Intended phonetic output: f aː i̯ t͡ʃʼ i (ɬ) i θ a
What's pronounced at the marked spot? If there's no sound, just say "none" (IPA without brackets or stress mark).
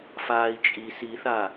s